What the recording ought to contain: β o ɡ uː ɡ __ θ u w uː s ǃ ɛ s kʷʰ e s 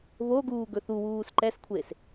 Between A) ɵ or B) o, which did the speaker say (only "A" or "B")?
A